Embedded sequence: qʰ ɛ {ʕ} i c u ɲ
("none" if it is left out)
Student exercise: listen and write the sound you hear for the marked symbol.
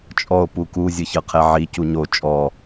ʕ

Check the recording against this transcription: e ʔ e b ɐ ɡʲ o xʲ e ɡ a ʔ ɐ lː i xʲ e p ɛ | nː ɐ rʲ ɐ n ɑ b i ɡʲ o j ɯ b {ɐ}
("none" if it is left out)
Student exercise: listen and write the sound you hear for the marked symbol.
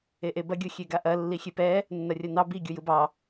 ɑ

